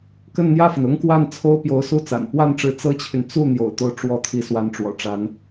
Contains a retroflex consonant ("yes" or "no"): yes